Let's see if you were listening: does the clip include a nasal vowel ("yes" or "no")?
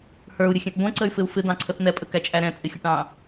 yes